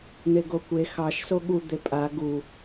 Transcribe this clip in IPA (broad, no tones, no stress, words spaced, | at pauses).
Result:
n̪eɡokʷe xɑʃ soɠu d̪epʼa ɡu